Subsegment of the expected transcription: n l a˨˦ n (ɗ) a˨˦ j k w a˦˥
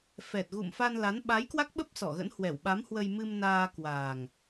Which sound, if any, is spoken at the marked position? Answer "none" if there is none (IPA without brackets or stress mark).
ɓ